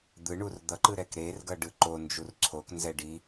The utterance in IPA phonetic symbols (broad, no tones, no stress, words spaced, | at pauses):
d̪ɯɳur d̪ʌǃɯ ɾɛkɾerɡʌ ɖɯǃond͡ʒur ǀʰoknzɛ ɖi